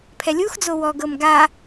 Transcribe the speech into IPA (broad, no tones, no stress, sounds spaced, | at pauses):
pʰ ɛ lʲ u x d͡z o w ɔ ɡ ɤ m ɡ a